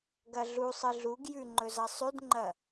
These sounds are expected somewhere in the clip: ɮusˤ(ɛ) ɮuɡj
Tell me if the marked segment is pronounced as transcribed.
no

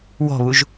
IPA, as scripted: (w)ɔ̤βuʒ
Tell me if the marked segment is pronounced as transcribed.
yes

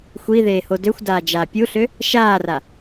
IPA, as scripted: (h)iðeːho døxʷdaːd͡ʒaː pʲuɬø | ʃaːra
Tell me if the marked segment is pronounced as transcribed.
no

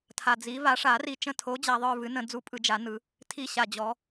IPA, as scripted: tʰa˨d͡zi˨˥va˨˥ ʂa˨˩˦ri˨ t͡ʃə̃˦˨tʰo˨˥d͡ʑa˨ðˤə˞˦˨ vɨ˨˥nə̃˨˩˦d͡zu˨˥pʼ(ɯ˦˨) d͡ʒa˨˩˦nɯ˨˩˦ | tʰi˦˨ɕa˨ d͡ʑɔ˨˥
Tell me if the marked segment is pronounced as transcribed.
no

